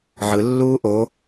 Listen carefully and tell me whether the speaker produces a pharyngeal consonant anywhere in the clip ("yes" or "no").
yes